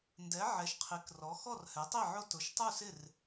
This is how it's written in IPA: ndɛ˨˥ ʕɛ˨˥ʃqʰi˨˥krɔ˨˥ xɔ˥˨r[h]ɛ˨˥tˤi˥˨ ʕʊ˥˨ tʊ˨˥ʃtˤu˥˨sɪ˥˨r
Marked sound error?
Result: no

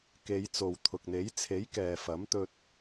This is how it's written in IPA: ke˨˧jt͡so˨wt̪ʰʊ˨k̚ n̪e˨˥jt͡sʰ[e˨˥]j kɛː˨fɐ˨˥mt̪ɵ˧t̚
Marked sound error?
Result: no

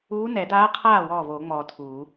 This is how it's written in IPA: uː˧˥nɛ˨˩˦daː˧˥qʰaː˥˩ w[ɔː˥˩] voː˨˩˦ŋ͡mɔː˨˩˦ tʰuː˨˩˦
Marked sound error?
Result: no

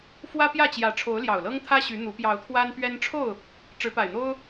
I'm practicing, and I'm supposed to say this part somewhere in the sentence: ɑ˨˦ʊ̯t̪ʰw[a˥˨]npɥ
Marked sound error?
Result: yes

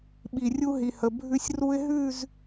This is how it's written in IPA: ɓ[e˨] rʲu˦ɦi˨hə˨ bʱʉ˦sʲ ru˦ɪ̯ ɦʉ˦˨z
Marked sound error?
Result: yes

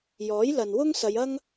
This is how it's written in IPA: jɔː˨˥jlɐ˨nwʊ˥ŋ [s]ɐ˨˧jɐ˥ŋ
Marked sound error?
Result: no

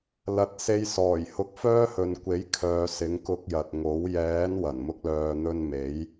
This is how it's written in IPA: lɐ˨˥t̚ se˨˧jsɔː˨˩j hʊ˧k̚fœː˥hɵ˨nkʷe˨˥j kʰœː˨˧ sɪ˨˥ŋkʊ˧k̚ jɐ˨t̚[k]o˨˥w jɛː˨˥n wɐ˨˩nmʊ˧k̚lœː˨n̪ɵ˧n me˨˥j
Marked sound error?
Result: yes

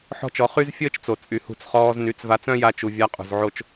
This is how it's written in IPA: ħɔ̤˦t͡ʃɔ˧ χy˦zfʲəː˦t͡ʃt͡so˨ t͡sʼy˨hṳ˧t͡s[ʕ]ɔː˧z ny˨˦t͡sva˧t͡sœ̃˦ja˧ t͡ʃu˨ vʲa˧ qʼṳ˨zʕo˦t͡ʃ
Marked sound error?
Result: yes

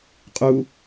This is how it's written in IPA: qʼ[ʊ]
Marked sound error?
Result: yes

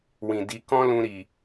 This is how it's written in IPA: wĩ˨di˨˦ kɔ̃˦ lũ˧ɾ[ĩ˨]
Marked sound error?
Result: yes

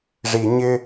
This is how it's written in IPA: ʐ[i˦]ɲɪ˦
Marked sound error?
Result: yes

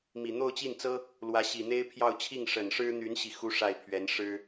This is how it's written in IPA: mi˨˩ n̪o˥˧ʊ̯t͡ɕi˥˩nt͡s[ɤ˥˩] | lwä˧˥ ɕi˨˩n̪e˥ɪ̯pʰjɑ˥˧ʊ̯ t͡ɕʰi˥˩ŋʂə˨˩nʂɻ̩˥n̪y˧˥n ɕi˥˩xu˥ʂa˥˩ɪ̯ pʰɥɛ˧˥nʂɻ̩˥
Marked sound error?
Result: yes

